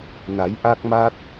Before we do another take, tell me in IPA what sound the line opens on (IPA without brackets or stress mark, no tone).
n